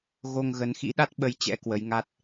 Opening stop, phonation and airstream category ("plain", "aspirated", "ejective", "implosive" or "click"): implosive